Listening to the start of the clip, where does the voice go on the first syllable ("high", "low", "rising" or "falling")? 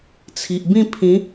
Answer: low